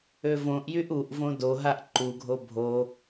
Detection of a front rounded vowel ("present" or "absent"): present